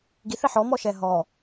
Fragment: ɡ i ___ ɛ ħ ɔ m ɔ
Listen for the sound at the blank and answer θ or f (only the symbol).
θ